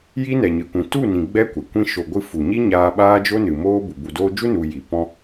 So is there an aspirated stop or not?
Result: no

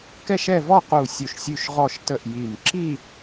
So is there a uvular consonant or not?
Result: yes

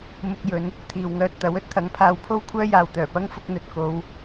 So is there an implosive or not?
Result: no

